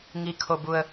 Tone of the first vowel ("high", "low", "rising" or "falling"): low